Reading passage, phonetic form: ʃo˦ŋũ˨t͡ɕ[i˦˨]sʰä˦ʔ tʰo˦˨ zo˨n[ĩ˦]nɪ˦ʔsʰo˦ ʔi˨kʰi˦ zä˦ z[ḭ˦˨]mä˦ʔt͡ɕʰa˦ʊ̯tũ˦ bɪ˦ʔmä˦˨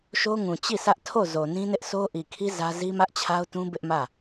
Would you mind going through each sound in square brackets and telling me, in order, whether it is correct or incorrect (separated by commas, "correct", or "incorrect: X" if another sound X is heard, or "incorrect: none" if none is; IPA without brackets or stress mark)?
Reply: correct, correct, incorrect: i˦